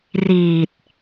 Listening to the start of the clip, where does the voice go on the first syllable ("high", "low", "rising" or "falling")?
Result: low